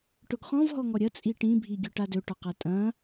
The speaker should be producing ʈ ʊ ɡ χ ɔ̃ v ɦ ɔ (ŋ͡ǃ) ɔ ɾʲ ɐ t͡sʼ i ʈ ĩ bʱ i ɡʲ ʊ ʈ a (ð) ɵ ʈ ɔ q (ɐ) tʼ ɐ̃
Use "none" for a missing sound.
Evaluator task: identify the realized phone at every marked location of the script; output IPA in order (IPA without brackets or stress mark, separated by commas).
ŋ, d, a